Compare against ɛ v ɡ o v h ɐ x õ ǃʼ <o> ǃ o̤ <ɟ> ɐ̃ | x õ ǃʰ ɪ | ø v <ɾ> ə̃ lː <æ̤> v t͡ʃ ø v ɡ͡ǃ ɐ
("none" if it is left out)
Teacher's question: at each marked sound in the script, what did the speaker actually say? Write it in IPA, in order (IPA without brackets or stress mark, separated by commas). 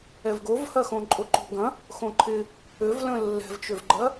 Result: o, ɡ, l, ɛ̤